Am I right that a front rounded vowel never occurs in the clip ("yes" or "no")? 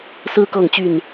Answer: no